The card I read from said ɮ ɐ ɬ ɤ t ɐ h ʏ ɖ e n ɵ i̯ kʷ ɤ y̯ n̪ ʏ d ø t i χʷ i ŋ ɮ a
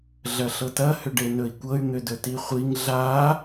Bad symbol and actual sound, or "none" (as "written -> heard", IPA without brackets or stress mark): ø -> ɵ